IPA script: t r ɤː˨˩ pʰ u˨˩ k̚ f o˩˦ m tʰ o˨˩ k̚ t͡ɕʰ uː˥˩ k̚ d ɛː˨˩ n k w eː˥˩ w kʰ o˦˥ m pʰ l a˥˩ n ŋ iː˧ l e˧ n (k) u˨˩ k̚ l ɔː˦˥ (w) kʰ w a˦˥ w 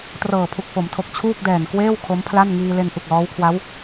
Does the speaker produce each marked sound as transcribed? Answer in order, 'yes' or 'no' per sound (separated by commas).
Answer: no, yes